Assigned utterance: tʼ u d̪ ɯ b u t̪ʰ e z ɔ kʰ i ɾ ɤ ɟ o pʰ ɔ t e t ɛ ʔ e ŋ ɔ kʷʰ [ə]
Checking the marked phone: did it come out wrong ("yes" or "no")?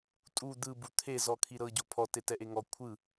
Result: yes